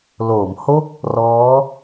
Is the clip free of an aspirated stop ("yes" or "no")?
yes